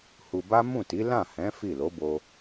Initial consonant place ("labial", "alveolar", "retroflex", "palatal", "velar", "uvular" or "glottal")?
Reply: glottal